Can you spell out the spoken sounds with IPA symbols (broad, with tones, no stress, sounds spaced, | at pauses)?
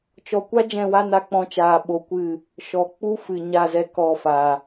t͡ʃ ɔ˨ kʷ a˦ d͡ʒ ɛ̃˦˨ w a˦ n a˧ k͡p ɔ̃˧ t͡ʃ aː˨ ɓ o˧ kʷ ɨ˦˨ | ʃ ɔ˨ k͡p u˦ f ɨ˨ ɲ a˦˨ z ɛ˧ k ɔ˦˨ f a˨